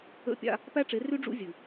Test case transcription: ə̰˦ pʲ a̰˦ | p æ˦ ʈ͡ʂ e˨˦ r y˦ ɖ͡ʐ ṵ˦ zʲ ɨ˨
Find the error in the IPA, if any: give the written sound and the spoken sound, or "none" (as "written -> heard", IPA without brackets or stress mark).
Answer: none